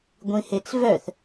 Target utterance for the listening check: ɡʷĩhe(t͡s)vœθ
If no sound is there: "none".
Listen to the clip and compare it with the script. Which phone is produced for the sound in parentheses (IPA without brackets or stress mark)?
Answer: t͡s